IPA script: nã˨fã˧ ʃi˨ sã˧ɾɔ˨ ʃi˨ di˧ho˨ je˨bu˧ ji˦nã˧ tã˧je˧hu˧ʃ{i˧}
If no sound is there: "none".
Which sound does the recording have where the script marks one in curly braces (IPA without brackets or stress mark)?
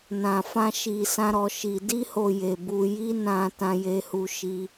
i˧